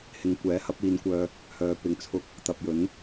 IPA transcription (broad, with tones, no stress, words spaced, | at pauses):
hɪ˨ŋ kʷɛː˨˥ hɐ˨˥p̚iː˨˧nkʷœː˧ | hœː˨˧ pɪ˨ŋt͡sʰʊ˧k̚ | t̪ɐ˨p̚jɵ˨˥n